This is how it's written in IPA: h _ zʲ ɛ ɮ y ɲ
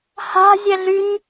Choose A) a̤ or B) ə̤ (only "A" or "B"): A